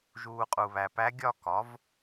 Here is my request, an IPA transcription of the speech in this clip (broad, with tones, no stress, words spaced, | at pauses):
ʒuː˨ qʼu˨βæ˨pæ˧˥ ɡʲɒ˥˧kɒ˩˥v